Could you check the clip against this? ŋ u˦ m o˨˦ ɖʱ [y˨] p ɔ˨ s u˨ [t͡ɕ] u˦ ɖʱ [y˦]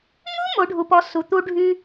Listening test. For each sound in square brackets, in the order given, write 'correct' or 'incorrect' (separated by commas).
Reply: incorrect, incorrect, correct